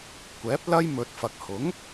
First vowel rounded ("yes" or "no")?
no